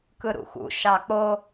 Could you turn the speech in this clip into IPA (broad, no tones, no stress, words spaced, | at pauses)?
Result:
kɯɾṵxṵ ʃɑk͡po